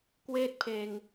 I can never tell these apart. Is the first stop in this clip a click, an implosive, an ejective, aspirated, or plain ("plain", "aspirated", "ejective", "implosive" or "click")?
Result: plain